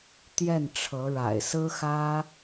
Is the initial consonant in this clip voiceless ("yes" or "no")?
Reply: yes